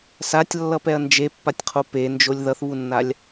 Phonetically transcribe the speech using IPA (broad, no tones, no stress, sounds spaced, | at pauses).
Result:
s a tʲ lː ʌ p ɛ ɐ̯ n d͡ʒ e pː a tʲ qʰ o p e n d͡ʒ o lʲ ð ʌ θ β u nː a lʲ